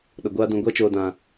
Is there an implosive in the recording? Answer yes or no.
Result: yes